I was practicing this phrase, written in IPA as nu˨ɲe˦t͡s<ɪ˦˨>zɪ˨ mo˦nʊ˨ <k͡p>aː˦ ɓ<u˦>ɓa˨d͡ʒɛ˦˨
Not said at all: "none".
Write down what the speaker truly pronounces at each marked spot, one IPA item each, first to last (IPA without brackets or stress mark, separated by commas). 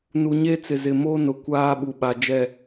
ɪ˨, kʷ, u˨